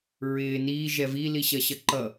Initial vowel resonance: oral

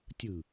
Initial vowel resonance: oral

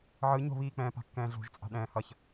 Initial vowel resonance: oral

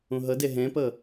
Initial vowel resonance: nasal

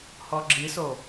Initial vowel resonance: oral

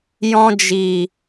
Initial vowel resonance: nasal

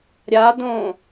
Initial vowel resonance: oral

